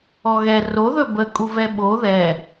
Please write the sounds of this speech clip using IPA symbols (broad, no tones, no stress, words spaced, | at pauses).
ɔɣɛ ro ðɵbə kʼuvɛɓo ðɛ